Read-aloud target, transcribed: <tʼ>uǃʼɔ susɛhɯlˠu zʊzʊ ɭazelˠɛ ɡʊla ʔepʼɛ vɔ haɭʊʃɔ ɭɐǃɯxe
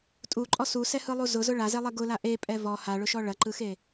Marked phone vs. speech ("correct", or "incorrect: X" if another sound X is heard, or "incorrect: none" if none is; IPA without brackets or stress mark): correct